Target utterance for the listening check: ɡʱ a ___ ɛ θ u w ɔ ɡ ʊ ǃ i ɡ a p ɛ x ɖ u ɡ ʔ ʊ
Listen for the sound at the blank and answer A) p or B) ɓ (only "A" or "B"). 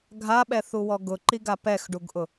B